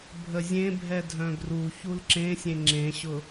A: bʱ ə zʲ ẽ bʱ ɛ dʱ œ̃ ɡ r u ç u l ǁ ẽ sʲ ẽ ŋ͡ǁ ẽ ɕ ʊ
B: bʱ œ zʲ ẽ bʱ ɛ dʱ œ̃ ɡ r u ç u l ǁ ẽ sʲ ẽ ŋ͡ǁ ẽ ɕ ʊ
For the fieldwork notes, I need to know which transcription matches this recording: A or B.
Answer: A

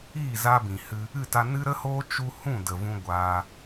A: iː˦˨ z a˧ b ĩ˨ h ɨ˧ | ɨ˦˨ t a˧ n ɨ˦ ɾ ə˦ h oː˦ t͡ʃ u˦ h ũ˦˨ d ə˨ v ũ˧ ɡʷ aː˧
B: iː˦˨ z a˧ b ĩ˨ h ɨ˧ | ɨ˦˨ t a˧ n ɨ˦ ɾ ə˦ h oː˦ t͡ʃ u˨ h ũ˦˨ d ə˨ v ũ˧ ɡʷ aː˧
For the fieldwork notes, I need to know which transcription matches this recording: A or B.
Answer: A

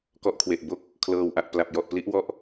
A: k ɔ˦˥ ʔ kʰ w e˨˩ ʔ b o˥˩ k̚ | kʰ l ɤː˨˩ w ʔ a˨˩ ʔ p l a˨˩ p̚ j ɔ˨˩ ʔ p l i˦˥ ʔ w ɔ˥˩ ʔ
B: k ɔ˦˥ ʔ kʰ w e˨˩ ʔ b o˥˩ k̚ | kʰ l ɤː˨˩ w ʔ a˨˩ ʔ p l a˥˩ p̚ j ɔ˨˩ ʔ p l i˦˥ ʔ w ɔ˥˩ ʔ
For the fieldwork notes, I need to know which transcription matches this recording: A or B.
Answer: A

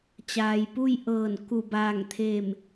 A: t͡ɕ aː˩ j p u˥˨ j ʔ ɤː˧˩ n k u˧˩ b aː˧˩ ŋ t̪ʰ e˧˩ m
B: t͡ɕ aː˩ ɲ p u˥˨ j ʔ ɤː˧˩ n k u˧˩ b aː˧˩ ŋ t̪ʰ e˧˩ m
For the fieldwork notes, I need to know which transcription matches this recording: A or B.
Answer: A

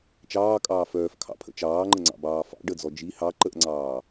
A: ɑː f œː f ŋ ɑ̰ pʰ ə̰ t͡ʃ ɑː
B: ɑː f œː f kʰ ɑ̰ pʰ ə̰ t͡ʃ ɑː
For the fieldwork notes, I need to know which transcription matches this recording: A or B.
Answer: B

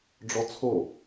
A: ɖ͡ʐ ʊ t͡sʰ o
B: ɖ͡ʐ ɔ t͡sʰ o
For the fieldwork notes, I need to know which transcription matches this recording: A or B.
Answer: B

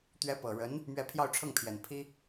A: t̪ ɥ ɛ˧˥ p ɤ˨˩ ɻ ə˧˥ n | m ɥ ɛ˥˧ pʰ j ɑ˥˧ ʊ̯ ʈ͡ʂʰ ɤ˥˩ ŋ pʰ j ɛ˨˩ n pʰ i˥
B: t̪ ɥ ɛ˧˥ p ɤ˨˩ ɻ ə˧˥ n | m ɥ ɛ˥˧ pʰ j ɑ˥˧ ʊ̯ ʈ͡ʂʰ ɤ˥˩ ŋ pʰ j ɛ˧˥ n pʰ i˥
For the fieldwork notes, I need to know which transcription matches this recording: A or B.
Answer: A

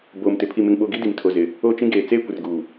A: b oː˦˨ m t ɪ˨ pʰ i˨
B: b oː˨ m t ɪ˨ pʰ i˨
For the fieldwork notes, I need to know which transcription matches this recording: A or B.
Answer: B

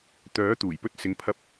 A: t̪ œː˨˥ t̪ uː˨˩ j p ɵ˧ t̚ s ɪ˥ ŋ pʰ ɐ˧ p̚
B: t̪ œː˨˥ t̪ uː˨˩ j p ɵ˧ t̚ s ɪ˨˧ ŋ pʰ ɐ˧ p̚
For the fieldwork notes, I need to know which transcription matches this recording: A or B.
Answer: B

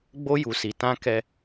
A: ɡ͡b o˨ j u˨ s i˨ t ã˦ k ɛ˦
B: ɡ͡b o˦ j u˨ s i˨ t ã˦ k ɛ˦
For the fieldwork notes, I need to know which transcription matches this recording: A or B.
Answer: B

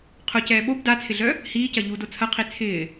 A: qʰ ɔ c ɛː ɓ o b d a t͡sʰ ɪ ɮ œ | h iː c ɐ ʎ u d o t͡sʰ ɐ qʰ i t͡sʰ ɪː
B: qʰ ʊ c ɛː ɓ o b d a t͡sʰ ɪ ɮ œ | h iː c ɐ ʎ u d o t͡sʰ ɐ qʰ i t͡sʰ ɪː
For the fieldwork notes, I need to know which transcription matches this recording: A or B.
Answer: B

